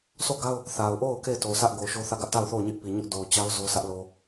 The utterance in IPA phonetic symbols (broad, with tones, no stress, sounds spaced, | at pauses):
s o˦˨ ɡ a˦ ʊ̯ | θ a˨ ʊ̯ ʔ o˦˨ ʊ̯ k e˦˨ ɪ̯ t o˨ s ä˦ ʔ ɡ o˨ ʊ̯ ʃ o˦ θ ä˦˨ ɡ ä˦ ʔ t a˦˨ ʊ̯ θ o˦˨ ʊ̯ ɲ ɪ˦ ʔ p i˨ ɲ ʊ˦ ʔ d o˨ ʊ̯ t͡ɕ a˦ ʊ̯ z o˦ s ä˦ ʔ l o˨